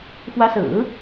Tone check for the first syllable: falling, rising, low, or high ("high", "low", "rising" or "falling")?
rising